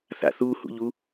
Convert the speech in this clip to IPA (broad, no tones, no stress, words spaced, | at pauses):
θa̰θu hṵʎu